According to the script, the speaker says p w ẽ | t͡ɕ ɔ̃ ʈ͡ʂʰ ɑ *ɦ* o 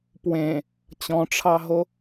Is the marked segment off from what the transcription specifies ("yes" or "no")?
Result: no